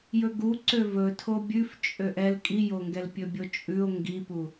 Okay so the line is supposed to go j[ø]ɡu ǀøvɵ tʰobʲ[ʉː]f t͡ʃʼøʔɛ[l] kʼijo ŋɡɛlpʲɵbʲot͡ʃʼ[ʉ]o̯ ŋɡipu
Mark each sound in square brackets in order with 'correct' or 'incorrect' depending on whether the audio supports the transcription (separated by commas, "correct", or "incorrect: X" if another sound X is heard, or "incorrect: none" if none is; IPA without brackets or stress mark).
incorrect: ɵ, incorrect: ʉ, correct, correct